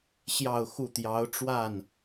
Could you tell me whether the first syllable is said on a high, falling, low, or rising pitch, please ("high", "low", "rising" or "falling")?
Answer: falling